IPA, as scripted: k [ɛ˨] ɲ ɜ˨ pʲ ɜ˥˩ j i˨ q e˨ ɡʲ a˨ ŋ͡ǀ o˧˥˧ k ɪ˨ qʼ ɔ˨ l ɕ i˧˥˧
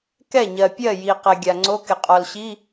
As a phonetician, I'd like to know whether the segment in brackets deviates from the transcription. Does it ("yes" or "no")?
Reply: yes